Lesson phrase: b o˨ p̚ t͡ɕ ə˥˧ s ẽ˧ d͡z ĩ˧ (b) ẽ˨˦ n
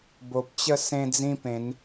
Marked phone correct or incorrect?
incorrect